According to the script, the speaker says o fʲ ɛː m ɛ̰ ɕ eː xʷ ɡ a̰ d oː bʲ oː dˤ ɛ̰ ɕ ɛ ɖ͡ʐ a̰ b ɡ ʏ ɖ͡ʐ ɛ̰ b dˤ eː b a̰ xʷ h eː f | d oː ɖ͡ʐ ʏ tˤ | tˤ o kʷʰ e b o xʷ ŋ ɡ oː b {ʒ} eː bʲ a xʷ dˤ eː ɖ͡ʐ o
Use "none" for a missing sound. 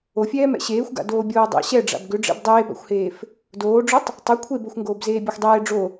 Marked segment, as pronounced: z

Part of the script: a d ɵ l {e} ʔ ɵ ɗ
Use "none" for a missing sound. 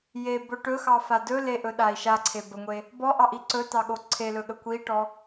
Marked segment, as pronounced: e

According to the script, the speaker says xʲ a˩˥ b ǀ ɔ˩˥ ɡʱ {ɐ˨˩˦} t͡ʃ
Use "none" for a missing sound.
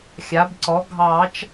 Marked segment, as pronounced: ɑ˨˩˦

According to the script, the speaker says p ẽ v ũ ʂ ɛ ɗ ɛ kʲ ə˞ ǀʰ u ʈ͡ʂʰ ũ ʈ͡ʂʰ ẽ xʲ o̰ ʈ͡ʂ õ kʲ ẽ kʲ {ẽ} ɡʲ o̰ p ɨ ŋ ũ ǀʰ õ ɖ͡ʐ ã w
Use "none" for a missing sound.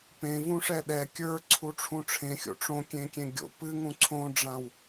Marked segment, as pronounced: ẽ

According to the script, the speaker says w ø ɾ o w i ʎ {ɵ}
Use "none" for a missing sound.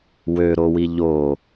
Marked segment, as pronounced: o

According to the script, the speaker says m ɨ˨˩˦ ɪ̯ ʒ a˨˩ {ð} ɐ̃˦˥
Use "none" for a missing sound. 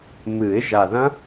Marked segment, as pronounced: ð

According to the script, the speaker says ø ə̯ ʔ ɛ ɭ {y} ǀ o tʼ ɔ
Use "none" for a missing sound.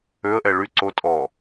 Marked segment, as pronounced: y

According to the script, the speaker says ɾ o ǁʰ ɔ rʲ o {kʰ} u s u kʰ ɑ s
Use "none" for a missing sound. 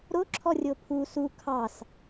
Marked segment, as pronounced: pʰ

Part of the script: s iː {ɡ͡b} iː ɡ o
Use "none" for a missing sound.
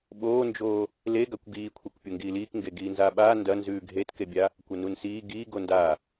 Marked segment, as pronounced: ɡ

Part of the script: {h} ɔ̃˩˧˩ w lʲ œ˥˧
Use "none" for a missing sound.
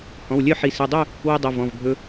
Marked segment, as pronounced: h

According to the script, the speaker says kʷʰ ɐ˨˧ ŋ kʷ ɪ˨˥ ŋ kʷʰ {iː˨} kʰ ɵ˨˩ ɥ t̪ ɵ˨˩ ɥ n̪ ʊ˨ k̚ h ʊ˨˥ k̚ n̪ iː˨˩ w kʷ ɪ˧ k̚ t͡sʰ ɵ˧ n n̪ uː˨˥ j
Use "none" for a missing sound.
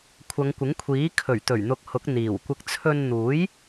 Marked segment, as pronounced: iː˨˥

